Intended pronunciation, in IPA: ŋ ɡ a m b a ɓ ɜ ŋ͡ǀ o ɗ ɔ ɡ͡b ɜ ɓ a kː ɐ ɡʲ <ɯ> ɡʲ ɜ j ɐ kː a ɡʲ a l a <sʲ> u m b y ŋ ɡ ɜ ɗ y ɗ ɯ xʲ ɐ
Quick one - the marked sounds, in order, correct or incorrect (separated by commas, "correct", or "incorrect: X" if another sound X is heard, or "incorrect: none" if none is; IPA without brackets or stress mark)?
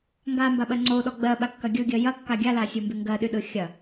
correct, correct